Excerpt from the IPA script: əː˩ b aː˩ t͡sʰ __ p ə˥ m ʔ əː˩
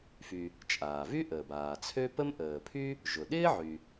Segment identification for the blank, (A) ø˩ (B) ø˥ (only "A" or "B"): B